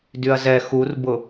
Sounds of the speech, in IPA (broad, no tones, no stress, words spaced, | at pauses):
dyɐ̯zɛ xurbʊ